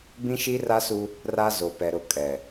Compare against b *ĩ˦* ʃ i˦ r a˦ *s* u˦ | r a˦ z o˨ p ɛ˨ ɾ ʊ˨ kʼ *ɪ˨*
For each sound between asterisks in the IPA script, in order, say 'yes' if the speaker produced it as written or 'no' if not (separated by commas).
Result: yes, yes, no